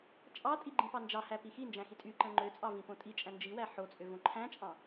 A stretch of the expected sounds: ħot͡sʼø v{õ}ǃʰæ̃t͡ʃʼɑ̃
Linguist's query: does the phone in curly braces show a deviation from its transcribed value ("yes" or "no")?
no